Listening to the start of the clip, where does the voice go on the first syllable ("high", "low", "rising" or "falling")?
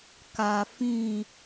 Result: low